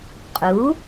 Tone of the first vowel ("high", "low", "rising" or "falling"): rising